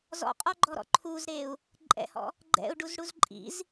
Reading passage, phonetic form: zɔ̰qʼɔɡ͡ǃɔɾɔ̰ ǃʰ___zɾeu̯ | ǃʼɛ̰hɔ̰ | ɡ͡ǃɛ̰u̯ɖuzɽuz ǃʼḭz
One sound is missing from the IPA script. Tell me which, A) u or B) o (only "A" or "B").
A